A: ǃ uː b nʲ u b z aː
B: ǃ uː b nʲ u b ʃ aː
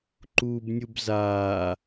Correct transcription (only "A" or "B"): A